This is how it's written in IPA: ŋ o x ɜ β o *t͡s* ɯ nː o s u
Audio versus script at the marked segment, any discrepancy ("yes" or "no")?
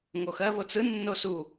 no